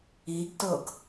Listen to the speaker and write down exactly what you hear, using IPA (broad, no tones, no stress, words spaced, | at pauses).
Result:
iɡtɤɡ